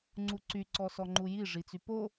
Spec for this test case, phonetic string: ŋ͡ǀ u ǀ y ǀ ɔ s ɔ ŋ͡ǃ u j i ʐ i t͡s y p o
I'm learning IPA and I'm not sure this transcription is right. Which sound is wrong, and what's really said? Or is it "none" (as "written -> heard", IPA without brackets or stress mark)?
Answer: none